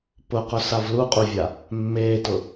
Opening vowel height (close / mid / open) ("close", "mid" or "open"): close